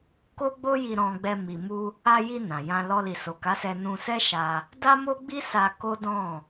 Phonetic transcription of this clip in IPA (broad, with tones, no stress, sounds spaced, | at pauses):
k o˦ ɡ͡b o˦ j i˧ ɾ ɔ̃˧ ɡ͡b ɛ˧ m i˨ m u˧ | a˧ j i˧ n ã˨ j ã˧ l ɔ˧ l i˨ s o˨ k a˨˦ s ɛ˧ n ũ˧ s ɛ˦ ʃ a˧ | d a˦ m o˦ ɡ͡b i˦ s a˧ k o˦ d ɔ̃˦˨